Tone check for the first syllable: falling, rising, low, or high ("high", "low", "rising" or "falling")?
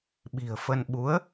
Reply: low